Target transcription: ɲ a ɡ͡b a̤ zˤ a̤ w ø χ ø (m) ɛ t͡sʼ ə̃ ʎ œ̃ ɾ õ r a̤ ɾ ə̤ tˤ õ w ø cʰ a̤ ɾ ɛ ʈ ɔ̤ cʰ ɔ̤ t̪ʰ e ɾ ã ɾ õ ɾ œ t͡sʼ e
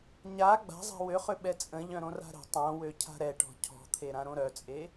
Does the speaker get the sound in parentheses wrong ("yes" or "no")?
yes